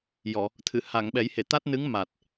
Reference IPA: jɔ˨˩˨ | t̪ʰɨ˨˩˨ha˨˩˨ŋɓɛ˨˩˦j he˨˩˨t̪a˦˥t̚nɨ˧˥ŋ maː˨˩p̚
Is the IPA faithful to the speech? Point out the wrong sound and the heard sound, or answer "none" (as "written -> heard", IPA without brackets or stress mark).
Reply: p̚ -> t̚